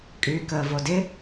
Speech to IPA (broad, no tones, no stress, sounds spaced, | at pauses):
kʼ yː k əː v o d ɪ